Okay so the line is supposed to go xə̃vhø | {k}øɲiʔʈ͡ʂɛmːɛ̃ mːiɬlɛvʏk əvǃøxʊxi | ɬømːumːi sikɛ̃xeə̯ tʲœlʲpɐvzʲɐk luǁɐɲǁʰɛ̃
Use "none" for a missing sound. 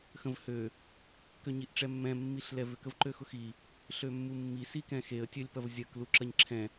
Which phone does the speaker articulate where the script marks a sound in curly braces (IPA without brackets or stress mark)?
k